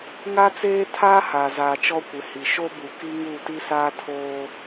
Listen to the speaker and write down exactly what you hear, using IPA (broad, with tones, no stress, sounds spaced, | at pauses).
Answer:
ŋ a˦ t͡s eː˦ tʰ aː˦ h aː˨ z aː˨ t͡ʃ ɔ˦ kʷ ɪ˨ h i˨ ʃ o˦ b u˨ k i˦ ŋ u˦˨ t i˦ s aː˦ tʰ oː˦